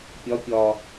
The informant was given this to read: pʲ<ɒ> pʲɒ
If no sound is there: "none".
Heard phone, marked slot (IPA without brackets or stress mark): ɒ